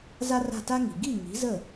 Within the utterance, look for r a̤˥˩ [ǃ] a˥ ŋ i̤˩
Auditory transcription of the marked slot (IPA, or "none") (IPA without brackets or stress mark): t